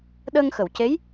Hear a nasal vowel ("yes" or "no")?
no